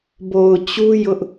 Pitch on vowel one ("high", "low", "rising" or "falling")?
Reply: low